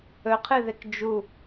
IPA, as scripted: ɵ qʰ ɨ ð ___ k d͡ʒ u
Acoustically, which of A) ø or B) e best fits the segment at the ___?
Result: B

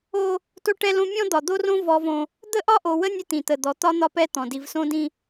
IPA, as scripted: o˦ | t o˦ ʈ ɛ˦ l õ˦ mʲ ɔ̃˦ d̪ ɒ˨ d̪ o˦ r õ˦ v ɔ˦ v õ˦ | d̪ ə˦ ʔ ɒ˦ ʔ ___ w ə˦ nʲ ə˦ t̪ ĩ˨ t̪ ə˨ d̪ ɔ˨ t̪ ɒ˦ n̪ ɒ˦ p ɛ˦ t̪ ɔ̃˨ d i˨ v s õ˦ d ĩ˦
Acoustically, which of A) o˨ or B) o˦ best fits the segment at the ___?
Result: A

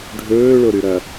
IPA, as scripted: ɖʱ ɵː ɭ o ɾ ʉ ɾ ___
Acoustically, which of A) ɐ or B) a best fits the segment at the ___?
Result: A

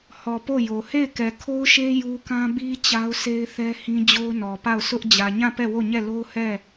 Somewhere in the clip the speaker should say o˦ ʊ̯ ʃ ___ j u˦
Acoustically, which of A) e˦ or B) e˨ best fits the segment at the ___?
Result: A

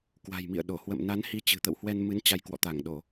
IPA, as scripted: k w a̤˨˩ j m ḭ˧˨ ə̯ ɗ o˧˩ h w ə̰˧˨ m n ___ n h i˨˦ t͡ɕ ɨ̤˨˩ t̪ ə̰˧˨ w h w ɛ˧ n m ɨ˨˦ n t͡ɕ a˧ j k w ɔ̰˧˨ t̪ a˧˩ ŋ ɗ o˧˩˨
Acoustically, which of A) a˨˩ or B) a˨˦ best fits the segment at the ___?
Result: B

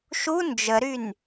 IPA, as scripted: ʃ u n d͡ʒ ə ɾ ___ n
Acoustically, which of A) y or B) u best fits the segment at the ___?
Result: A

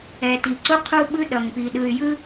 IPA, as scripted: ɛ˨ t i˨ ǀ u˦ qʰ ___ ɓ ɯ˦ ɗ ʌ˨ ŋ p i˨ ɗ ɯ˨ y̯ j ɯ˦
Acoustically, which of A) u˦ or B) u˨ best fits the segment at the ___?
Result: A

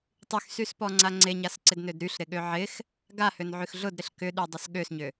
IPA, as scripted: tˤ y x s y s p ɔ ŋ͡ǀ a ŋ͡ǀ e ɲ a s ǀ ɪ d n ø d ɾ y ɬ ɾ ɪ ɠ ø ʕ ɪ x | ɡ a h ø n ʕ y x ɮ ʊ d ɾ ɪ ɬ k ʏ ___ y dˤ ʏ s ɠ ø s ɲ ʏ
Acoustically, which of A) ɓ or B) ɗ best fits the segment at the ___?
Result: B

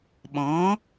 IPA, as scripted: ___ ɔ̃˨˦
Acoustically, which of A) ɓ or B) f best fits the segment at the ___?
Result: A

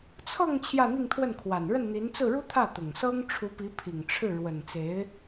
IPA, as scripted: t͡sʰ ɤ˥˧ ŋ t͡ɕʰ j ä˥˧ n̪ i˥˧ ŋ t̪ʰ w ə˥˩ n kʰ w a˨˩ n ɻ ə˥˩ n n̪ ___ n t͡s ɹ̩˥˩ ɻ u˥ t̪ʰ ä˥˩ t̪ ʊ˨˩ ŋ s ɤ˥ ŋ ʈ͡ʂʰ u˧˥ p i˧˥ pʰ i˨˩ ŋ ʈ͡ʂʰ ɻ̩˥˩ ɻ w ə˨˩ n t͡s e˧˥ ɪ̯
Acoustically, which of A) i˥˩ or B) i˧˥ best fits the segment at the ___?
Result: B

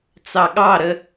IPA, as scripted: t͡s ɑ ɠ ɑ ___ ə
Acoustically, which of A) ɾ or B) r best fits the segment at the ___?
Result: A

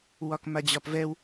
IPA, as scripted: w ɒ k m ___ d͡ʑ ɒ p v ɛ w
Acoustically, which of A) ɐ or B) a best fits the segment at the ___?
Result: B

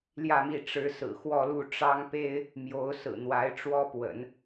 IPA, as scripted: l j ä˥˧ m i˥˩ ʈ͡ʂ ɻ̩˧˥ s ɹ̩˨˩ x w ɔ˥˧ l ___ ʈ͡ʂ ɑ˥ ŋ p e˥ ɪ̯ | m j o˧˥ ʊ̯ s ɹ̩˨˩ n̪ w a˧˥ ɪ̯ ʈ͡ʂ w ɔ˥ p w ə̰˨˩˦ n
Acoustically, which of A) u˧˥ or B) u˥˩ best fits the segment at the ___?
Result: B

